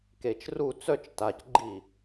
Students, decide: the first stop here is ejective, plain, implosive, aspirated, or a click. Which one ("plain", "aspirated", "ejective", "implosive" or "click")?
plain